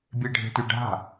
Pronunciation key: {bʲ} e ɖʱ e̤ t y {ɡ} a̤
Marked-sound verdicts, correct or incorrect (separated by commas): correct, incorrect